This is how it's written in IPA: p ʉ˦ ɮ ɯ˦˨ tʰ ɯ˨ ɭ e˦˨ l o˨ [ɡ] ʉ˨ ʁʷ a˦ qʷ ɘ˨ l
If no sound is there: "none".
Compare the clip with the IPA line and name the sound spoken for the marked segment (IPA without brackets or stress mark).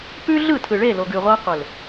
ɡ